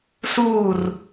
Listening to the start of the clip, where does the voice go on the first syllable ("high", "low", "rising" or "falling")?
falling